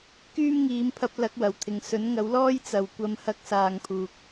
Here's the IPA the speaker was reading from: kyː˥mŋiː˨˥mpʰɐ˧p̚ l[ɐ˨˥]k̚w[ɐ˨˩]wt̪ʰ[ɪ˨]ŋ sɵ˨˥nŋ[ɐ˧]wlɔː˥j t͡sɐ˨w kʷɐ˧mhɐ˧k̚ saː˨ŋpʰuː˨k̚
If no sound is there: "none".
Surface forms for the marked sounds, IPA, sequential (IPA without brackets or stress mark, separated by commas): ɐ˨˥, ɐ˨˩, ɪ˨, ɐ˨˥